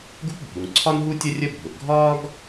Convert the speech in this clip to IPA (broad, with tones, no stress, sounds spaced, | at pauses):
ɡ u˥ p bʱ u˩ ŋ ǀʰ ɒ˥ n ɦ u˥ tʲ ə˥ rʲ ə˥ bʱ ʊ˩ ʔ ɡʱ ɒː˥ ɡ